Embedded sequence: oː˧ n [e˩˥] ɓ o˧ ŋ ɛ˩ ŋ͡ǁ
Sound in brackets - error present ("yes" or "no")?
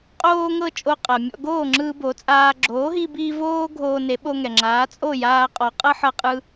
no